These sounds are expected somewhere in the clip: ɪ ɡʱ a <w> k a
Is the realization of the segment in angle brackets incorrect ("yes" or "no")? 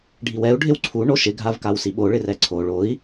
yes